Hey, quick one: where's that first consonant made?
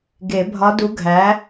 velum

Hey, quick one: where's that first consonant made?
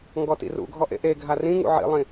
velum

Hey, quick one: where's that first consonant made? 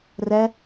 tongue tip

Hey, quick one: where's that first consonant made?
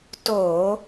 tongue tip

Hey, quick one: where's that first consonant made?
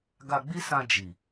velum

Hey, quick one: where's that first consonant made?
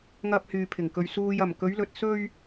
velum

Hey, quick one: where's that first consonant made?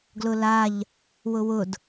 velum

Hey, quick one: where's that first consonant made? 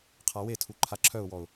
uvula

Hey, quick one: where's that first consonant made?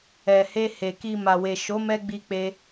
throat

